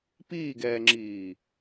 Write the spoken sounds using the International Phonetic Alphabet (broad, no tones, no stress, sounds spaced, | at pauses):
p iː ɡ ɛː ŋ͡ǁ iː